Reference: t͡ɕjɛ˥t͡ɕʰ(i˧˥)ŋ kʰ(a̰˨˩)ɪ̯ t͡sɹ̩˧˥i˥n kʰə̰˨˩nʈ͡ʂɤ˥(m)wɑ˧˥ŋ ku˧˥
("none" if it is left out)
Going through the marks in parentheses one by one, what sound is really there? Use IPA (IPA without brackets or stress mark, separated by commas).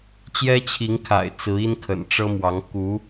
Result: i˧˥, a̰˨˩, m